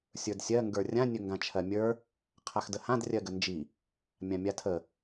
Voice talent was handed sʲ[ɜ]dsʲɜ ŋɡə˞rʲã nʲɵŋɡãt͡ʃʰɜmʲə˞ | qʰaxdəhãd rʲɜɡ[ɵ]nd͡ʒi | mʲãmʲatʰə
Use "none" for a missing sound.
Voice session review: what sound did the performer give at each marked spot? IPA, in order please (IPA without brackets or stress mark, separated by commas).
ə˞, ə